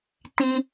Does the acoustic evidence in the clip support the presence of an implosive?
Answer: no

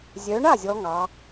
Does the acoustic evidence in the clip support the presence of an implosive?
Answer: no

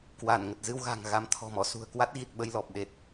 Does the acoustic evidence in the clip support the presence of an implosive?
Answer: yes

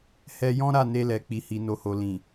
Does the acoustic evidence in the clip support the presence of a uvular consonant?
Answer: no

